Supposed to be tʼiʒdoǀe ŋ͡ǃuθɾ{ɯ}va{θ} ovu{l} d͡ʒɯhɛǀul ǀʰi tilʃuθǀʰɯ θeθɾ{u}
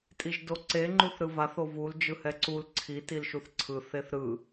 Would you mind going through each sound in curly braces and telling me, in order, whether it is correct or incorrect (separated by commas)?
correct, correct, correct, incorrect